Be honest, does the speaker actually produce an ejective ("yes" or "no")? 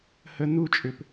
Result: yes